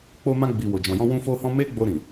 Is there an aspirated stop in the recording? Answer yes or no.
no